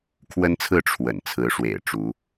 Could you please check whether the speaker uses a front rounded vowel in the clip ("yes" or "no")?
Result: no